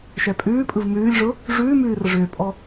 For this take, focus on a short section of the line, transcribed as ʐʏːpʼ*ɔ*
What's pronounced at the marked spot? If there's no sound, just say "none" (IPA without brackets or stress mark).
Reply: ɔ